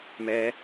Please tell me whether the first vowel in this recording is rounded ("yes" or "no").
no